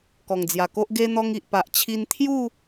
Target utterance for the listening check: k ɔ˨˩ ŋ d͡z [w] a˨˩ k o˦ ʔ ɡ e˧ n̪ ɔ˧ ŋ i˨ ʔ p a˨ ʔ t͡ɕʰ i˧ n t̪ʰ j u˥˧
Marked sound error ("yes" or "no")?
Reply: yes